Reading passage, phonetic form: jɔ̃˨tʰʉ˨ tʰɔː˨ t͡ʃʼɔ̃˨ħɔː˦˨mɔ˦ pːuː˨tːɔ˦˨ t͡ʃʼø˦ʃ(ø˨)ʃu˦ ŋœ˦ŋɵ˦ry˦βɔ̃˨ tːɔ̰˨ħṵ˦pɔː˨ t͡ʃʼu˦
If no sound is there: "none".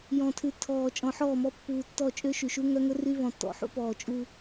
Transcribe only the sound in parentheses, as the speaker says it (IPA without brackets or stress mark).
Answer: y˨